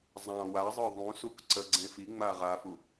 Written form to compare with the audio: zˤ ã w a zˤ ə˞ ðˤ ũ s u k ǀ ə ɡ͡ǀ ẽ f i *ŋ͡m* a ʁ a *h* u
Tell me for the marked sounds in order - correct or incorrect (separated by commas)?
correct, incorrect